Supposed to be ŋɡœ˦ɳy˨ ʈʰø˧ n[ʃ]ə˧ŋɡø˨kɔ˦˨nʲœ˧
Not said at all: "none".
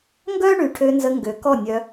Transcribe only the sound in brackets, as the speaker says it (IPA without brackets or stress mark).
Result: z